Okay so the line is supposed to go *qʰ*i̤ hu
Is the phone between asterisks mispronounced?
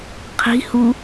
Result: no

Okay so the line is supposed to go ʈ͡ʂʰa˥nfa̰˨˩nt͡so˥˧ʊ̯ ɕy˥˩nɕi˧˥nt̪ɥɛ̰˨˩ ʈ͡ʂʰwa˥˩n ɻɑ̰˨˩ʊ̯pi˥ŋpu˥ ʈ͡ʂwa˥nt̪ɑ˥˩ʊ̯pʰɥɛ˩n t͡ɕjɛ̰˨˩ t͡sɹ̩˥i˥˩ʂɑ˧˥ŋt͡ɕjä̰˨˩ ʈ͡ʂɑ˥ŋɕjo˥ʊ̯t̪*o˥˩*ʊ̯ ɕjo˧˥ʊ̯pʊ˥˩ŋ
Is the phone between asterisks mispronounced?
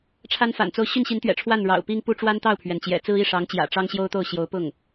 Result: no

